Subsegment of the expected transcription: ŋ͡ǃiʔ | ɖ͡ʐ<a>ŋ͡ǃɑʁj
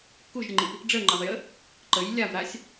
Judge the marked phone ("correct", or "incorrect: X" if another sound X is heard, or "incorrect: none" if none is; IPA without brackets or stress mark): incorrect: ə